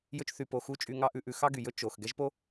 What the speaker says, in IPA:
jɵ˧t͡ʃ θy˨po˨xu˧ t͡ʃʼy˧ŋɑ˦ʔʉ˧ʔʉ˧ xɑ˦ɡy˨jɵ˦ t͡ʃo˨x ɡɛ˦ʒpo˦

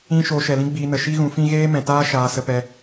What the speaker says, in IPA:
ĩ˧ ʃoː˧ʃɛ˨lĩ˦ɡ͡biː˧ nə˨ʃi˦ ɣũ˧fĩ˦ ɣeː˦mɛ̃˨taː˦ ʃaː˧sə˧pɛ˧

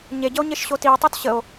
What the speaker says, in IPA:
ɲeɟəo̯ɲeʃɕo tio̯tˤot ɕəo̯

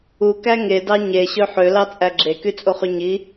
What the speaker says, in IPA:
ukæ ŋedɑ ɲeɕø ħølɑt͡sʼæ ɡ͡ǁekyt͡sʼoχy ɲi

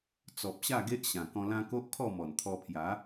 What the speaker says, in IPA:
t͡sɔ˨p̚ɕa˥˧ ɡe˦ʔɕã˨˩ kɔ̃˧lã˦ ko˦ʔkʰɔ˥˧ mɔ˨˩nt̪ʰɔ˧pʰja˨˦

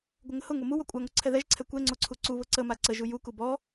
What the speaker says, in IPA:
ɡʷəŋəhʊŋo mu wɔkʷʼaŋo ǀʰɛðɛʒǀʰɛ kʷɛŋ͡ǀoǀʰu ǀuβʊ ǀəma ǀəʒu juku bɔ

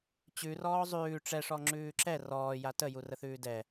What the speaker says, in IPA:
t͡ɕʉ rɔːzˤʉː ʈ͡ʂɛʂɔ ŋ͡ǁʉːǁɛ rɔː jatəju rəθʉːdɛ

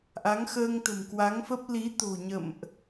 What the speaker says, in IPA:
ʔa˨˦ŋxəː˧ŋ t̪ə̤˨˩mkwa˨˦ŋfə˦˥p̚ li˨˦t̪o̤˨˩ɲə̰˧˨mʔ

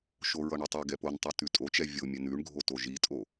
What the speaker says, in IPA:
ʃoɹʌɳotˤi ɡɛpontˤʉ tʉtʼot͡ʃɛ vʲo mʲɛnʉɳɡʱoto ʒitʼo

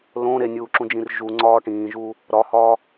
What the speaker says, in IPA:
lõ ɾenʲuːǁũd͡ʒĩr ʒuŋ͡ǀɒː ʈĩːʒuː | ɾɒhɒː

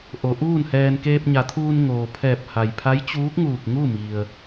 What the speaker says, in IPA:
ʔo˩˧ʔuː˥˨nhɛː˧n keː˧p̚ɲa˩˧t̪ʰuː˧n ŋoː˩pʰɛː˧˩p̚ ha˩jpʰa˧˥jt͡ɕuː˧˥k̚ŋuː˧˩k̚ ŋu˥˨mi˩ə̯

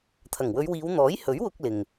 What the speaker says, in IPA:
t̪ʰɐ˨˩ŋwɵ˨˧ɥwiː˨˧w n̪ɔː˨˥jhɵ˨˥ɥwʊ˧k̚ lɪ˨ŋ

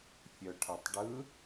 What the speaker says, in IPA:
fʲœʈʰʌtˤɖɯ

